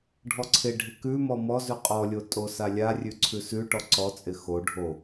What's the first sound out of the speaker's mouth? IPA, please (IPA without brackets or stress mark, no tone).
ɖʱ